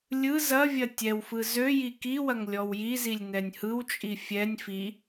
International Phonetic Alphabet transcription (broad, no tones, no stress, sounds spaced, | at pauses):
lʲ ɯ z ɐ vʲ ɐ tʲ ɛ w f ɯ z ø j i k i w ɐ ŋ lʲ ɔ w j i z i lʲ n ɛ nʲ h ɯ w t͡ʃʼ i fʲ ɛ nʲ f i